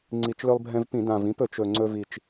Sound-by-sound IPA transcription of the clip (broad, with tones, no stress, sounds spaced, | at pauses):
ŋ͡ǀ i˨˩ t͡ʃ l ɵ˧ lˠ bʱ ɛ̃˧ v p ĩ˧˩˧ d ã˨˩ v ĩ˨˥ p ɵ˧˩˧ t͡ʃ ɵ˨˩ ŋ͡ǀ ɵ˧ v i˨˩ t͡ʃ